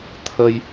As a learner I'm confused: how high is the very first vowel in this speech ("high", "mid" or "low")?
mid